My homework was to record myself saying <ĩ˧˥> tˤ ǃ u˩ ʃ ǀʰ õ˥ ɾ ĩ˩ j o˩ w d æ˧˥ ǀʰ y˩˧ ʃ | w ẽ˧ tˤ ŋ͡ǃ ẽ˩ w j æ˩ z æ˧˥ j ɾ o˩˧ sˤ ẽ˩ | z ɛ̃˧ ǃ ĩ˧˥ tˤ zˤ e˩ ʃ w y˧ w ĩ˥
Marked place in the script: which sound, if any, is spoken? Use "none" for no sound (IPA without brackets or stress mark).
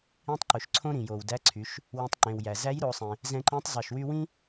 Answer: ĩ˧˥